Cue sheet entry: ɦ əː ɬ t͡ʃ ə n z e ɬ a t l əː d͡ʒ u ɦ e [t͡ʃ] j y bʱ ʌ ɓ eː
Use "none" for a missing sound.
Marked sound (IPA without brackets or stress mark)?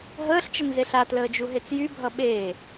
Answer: t͡s